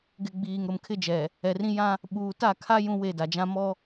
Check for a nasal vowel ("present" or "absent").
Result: present